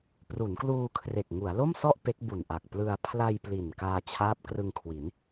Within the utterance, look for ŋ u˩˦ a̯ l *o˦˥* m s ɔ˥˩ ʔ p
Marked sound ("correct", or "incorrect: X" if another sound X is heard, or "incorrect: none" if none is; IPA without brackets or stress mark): incorrect: o˥˩